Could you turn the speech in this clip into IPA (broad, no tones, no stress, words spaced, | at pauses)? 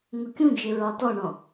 ŋʊkʲũd͡ʒɪ ɹɒtɔɳɔ̃